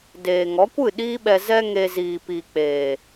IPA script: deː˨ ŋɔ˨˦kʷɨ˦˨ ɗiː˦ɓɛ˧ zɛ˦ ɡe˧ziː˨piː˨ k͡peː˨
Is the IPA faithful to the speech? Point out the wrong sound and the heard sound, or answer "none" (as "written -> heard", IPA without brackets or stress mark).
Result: ɡ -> ŋ